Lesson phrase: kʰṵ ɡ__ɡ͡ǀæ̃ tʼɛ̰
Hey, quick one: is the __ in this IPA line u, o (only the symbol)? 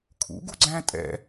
u